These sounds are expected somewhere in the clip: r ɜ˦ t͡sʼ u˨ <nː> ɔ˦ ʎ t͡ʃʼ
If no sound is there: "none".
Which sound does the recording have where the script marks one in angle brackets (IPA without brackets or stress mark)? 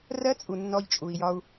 nː